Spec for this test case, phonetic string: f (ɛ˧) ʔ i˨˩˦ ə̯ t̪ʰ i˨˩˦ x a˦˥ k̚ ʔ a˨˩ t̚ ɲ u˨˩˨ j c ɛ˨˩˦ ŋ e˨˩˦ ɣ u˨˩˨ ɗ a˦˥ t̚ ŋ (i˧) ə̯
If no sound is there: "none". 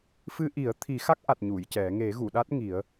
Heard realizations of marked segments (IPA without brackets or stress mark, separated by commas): ɨ˧, i˨˩˦